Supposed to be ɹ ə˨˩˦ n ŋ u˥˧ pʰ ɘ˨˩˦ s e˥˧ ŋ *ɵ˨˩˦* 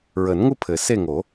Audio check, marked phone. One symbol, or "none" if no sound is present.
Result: o˨˩˦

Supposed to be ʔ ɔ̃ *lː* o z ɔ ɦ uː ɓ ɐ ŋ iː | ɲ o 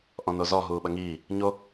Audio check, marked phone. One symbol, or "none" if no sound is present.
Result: n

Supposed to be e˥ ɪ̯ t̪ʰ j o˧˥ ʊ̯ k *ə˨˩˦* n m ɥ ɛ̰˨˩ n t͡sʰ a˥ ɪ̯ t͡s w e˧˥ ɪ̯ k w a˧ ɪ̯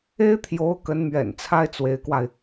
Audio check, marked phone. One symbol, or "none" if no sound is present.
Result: ə˧˥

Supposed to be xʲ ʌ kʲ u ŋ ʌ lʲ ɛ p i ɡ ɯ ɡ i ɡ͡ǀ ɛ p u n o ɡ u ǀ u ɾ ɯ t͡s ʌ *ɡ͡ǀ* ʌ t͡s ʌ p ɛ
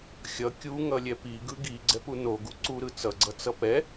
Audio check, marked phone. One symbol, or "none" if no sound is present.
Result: ɡ͡ǀ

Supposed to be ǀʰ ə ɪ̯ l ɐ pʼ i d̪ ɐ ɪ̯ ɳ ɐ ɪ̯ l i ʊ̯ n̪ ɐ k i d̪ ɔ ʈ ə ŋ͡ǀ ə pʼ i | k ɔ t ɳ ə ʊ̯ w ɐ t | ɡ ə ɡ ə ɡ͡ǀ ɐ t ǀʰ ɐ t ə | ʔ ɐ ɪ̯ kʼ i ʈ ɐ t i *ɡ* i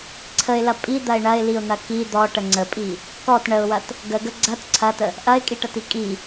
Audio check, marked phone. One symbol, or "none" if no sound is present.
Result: kʼ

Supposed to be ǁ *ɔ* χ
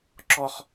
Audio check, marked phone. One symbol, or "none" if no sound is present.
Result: ɔ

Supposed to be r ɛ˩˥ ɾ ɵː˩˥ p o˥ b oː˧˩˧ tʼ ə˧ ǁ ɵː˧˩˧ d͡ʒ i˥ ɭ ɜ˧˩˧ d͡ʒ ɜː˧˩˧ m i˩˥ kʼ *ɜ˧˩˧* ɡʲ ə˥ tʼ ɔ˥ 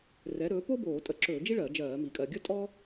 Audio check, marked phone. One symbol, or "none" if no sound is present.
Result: ɜ˧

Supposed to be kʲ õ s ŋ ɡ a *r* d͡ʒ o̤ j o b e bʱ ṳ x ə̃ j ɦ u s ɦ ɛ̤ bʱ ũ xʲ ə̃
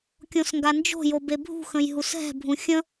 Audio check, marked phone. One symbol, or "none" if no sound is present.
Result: n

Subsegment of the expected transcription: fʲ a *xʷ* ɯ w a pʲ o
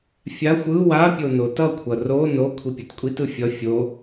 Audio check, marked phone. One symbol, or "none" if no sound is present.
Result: xʷ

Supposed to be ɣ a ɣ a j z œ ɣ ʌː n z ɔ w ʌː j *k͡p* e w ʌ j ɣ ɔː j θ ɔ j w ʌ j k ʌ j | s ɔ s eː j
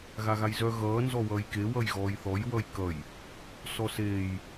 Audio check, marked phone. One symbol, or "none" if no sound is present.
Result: k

